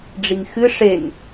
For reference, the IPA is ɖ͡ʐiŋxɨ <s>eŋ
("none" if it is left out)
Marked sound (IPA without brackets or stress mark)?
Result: ʂ